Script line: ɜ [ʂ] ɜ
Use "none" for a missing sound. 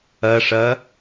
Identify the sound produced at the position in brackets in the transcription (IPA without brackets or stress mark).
ʂ